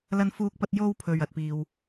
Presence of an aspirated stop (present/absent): present